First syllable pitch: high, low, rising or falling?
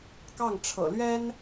falling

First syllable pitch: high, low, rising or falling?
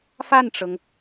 falling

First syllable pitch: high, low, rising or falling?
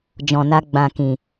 low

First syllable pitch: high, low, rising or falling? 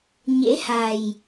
rising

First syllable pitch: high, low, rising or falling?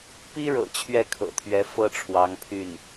high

